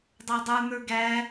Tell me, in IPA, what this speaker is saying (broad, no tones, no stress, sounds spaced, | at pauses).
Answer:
dˤ ə˞ dˤ ə˞ n̪ ə˞ ɡ æ